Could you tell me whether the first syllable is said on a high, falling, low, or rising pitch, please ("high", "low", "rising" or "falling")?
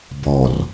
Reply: low